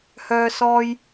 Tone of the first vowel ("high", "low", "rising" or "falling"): high